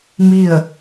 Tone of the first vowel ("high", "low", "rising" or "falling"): falling